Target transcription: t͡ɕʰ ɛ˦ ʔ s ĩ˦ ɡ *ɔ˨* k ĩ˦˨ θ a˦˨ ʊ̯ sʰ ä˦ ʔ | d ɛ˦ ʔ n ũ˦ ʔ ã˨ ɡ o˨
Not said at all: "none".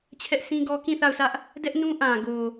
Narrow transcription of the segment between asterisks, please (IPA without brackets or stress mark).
ɔ˦